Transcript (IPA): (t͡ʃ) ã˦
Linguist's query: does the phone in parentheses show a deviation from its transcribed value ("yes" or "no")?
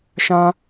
yes